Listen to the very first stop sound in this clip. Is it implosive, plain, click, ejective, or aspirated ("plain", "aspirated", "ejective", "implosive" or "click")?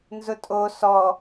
ejective